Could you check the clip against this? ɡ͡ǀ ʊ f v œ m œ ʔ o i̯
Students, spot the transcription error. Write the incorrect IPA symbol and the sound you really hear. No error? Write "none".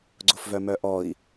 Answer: o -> ɔ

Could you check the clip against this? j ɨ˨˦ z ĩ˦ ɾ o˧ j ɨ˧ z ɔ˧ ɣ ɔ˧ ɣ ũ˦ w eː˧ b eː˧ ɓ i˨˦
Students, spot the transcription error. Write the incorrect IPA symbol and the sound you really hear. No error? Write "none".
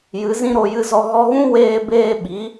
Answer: none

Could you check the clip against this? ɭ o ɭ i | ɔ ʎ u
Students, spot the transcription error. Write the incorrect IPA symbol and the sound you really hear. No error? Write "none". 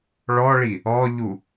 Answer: o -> ɔ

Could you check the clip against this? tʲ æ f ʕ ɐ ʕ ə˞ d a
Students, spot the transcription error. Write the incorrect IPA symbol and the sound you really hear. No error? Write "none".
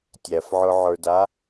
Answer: ɐ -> ə˞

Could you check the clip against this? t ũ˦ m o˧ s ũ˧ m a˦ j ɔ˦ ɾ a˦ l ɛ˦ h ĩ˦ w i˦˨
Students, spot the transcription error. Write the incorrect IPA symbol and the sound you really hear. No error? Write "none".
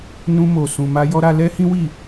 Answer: t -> n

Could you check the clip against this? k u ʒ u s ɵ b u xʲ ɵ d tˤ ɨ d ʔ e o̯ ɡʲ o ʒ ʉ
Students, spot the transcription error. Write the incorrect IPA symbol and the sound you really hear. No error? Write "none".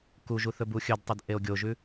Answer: s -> θ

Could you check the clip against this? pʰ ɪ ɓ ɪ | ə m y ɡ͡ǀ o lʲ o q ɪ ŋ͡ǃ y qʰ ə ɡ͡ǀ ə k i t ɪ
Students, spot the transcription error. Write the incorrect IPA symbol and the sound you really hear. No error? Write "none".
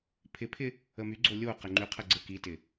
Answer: ɓ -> pʰ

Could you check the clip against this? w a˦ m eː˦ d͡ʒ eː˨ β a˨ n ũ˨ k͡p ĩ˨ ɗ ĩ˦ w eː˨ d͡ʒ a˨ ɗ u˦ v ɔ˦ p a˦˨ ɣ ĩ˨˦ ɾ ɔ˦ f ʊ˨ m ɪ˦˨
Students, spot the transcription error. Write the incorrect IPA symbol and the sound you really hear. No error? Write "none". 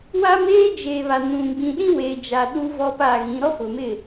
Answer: k͡p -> ɡ͡b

